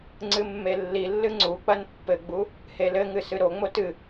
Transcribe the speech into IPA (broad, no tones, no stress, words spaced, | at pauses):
ŋ͡ǀɨmːelːilːɨ ŋ͡ǀuk͡pɐn pːɘɡ͡bu | helɘŋɨ sɨɾoŋ͡mo tɨ